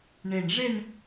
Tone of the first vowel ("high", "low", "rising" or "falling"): low